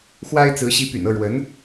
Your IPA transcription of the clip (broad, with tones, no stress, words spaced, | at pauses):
xwa˥ɪ̯t͡sɹ̩˧˥ ɕi˧˥py̰˨˩nɤ˥˩ ɻwə˧˥n